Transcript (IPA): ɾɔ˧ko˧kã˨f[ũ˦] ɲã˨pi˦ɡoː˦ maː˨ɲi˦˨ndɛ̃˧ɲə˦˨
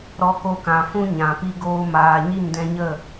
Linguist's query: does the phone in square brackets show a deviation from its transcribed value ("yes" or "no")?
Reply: no